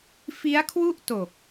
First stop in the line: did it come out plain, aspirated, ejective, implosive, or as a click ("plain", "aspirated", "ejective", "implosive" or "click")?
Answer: aspirated